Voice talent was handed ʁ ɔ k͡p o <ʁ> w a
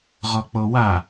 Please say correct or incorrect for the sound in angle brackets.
incorrect